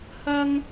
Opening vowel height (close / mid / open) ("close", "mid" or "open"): open